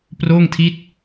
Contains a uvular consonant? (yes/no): no